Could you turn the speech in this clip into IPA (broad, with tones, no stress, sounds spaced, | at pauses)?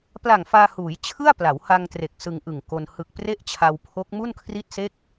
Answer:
p l a˨˩ ŋ f aː˧ h uː˩˦ j t͡ɕʰ ɯ˥˩ a̯ p l a˩˦ w h a˧ ŋ t r e˨˩ k̚ s ɯ˧ ŋ ʔ ɯ˨˩ ŋ k o˧ n h ɯ˨˩ k̚ p r e˥˩ ʔ t͡ɕʰ a˧ w pʰ o˦˥ k̚ m u˥˩ n kʰ r i˥˩ t̚ s e˥˩ k̚